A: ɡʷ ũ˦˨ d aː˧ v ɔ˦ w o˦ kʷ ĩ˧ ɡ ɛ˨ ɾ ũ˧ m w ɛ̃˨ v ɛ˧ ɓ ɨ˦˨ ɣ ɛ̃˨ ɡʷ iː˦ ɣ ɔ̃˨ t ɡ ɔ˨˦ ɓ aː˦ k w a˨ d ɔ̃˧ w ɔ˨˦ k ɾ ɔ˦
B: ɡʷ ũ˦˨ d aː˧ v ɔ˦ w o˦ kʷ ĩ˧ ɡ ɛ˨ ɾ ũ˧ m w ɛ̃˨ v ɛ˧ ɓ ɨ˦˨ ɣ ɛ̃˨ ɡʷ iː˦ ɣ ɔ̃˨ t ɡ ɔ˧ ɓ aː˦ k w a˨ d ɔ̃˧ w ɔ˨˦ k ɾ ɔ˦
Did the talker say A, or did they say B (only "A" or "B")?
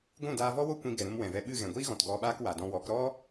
B